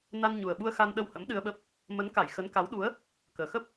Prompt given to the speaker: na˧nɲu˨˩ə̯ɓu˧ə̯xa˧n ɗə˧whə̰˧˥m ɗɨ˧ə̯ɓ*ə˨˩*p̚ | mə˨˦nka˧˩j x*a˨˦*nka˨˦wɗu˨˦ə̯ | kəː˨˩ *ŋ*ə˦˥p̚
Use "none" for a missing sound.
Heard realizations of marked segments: ə˦˥, ə˨˦, x

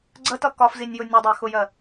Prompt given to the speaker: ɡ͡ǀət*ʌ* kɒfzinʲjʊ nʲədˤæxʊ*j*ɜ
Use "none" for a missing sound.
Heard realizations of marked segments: ʌ, j

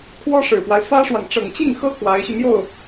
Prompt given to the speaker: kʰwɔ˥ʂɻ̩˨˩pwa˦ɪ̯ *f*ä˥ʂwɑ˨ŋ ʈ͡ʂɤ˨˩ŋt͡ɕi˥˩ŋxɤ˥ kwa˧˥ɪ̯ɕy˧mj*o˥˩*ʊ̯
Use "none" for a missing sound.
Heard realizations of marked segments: f, o˥˩

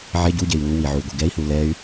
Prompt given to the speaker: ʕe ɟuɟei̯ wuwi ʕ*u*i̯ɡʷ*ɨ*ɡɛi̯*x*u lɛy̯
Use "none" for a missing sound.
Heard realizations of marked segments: u, i, h

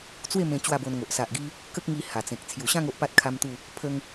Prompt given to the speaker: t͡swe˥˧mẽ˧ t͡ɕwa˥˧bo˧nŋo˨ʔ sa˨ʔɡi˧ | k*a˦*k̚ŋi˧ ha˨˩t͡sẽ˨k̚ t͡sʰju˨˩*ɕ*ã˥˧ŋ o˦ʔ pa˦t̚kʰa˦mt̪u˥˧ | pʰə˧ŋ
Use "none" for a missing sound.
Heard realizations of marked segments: ə˦, ɕ

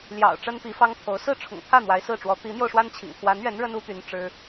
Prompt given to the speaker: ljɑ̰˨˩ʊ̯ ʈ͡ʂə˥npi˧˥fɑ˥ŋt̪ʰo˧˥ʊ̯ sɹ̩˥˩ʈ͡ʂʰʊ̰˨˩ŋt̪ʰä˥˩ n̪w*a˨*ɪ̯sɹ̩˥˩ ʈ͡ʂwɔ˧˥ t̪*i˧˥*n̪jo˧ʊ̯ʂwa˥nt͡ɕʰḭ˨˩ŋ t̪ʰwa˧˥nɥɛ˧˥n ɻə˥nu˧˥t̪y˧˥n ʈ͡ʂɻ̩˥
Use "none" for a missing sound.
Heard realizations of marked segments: a˧˥, i˧˥

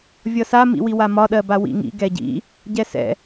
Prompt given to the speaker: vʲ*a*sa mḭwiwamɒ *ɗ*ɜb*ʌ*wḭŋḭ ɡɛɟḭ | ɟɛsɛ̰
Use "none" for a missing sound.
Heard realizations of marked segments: ʌ, ɗ, a

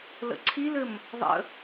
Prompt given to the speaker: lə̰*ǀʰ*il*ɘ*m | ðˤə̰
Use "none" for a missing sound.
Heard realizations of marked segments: ǀʰ, ɘ

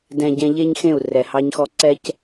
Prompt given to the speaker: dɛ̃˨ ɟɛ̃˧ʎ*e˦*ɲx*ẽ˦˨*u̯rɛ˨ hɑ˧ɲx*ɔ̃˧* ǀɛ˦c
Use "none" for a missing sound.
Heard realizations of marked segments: e˦, ẽ˦˨, ɔ˧

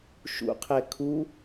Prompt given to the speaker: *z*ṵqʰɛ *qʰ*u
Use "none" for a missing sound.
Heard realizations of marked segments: ʃ, kʰ

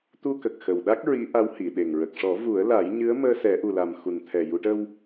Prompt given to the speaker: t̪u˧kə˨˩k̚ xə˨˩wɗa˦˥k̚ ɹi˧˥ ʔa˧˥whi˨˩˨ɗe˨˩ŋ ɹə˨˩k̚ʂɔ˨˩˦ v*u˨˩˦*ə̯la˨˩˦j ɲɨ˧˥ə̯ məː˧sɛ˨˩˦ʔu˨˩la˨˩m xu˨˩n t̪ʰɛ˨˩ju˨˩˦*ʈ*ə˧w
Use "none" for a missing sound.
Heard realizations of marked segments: u˨˩˦, ʈ

